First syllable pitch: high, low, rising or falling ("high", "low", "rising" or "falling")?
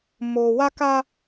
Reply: low